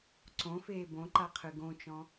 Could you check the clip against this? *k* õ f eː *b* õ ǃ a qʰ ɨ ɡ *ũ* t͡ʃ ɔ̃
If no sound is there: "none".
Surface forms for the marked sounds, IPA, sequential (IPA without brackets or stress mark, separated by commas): ǀ, b, õ